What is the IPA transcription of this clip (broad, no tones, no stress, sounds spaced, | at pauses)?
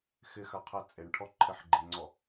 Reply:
x ɪ x a qʰ ɛ t͡sʼ e ɳ ʈʰ ɔ ǃʰ ɪ ħ ɡ͡ǃ i ŋ͡ǀ ɔ